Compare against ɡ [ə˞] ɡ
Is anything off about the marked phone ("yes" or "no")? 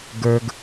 no